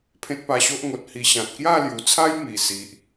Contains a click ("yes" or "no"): no